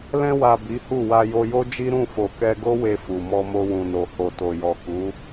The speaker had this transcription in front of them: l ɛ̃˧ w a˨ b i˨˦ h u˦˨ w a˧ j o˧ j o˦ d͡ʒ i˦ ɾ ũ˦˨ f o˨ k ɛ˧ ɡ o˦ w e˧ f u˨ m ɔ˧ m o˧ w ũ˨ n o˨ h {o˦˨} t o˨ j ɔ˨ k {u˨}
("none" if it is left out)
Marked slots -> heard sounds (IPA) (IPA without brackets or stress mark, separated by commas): o˨, u˨˦